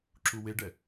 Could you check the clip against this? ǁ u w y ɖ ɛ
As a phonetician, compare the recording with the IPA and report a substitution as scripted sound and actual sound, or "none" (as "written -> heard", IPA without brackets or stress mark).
y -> e